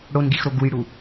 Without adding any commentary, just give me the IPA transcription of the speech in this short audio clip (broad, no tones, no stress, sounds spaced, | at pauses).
ɽ o n ɡ i x ɾ o ɡ u j ɽ u